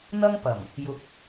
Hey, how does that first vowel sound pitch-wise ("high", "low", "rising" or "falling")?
high